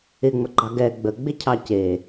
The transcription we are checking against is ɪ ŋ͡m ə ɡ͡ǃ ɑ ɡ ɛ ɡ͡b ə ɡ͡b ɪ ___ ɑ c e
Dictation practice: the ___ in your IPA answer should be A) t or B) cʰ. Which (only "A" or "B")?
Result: B